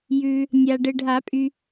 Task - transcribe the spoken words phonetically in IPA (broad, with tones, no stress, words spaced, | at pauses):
jʉ˨ | nʲa˨ ɖɘ˨ɖʱa˨˩˦pʼy˨